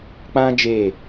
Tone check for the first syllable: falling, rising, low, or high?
high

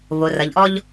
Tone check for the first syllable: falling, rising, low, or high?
low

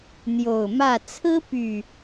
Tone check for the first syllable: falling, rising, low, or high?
low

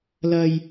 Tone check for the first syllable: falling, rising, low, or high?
low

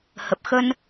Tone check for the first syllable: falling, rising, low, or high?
low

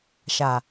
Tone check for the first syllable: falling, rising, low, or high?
low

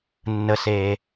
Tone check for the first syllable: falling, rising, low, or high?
low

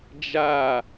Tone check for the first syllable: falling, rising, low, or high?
falling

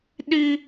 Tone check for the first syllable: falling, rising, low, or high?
high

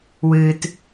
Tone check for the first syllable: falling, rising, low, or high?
low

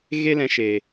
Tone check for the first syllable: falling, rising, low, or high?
high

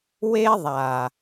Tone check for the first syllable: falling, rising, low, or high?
high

